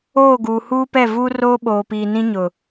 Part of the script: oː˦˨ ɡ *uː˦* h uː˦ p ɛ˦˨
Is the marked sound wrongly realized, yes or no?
yes